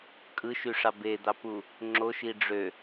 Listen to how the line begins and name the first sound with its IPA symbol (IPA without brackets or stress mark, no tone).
kʼ